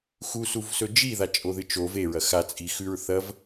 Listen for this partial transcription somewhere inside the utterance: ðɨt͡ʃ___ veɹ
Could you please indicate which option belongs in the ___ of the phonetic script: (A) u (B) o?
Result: B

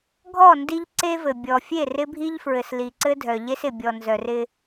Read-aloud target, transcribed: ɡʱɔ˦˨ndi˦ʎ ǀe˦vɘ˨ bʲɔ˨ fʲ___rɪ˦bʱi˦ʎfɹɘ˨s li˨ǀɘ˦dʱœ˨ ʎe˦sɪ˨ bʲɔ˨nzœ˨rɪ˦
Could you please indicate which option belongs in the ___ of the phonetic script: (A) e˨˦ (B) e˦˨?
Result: B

